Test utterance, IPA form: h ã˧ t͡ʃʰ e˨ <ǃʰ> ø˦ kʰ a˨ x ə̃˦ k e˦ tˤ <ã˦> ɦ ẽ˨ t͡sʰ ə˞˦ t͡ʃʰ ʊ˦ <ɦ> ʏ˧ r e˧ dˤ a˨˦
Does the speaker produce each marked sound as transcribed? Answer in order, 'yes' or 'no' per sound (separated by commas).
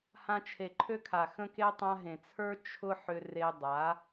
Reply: yes, no, no